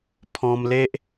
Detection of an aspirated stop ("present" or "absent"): present